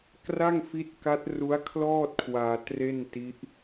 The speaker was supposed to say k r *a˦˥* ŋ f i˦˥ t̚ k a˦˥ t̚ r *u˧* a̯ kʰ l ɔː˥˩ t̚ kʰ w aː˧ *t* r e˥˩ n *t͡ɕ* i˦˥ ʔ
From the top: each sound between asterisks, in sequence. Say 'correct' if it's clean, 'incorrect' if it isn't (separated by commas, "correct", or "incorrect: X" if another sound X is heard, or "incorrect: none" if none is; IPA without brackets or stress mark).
incorrect: a˥˩, incorrect: u˦˥, correct, incorrect: t